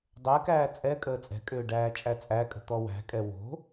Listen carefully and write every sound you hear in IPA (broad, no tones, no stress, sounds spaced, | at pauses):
dˤ ɛ k æː t͡sʼ ɛ kʼ əː t͡sʼ ɛ̤ kʼ ʏː ɖ æː t͡ʃʼ æ t͡sʼ æ kʼ ə̤ t̪ ɔ w æ̤ kʼ ɛ w o̤